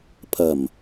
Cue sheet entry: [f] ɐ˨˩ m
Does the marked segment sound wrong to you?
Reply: yes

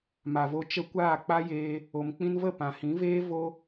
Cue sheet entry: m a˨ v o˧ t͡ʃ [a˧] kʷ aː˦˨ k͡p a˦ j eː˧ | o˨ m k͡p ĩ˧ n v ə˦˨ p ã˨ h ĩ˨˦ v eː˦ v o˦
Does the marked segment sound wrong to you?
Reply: yes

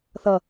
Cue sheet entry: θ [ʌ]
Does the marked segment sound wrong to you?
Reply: no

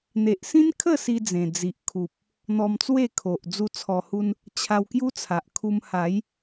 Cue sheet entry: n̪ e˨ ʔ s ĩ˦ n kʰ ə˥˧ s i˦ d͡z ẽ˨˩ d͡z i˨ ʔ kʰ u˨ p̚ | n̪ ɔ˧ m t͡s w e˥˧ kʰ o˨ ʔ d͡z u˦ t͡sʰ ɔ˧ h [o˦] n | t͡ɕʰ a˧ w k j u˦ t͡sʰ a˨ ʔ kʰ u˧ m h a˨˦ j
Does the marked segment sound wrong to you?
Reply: yes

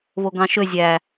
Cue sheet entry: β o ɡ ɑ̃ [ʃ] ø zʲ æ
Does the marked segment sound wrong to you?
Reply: no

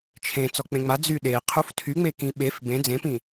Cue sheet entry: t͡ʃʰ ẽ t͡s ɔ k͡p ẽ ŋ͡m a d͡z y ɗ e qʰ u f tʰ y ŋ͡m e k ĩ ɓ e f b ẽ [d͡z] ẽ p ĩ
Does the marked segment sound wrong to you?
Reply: no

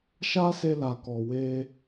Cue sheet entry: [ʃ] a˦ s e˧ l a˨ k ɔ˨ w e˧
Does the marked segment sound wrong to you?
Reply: no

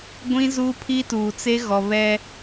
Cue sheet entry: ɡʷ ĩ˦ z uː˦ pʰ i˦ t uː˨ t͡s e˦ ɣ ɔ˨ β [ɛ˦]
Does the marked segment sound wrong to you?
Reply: no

